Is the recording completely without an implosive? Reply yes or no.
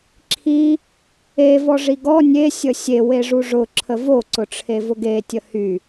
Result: yes